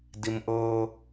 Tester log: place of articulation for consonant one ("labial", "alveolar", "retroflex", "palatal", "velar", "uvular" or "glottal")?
alveolar